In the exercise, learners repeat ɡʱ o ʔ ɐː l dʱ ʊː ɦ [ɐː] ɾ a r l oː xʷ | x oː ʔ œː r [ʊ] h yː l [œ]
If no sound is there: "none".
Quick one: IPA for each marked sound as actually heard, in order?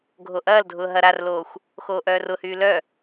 ɐ, ʊ, œ

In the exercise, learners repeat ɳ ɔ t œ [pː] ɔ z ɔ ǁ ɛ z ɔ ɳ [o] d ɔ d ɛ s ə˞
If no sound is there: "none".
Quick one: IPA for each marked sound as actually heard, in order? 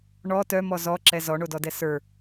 m, o

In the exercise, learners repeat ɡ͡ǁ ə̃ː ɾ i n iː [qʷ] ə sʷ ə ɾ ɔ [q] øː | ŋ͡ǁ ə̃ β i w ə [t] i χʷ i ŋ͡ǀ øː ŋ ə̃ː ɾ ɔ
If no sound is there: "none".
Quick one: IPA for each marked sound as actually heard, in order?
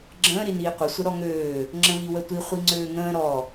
qʷ, ŋ, tʷ

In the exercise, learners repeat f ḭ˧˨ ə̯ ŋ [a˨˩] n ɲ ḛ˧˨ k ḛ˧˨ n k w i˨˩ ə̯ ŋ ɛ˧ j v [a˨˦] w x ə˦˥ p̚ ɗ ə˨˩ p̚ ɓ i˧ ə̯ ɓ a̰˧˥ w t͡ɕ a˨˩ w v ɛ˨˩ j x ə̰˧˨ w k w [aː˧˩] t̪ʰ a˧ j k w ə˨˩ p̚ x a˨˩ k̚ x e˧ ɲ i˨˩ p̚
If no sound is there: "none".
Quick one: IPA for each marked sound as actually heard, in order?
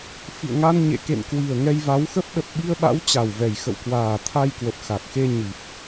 a˧, a˨˦, aː˨˩

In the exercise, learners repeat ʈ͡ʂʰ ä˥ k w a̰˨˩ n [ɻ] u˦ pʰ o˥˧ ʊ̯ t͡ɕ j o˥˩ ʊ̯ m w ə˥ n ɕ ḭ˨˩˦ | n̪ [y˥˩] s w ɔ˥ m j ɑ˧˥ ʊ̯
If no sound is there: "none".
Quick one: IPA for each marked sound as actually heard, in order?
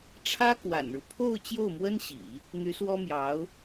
ɻ, y˧˥

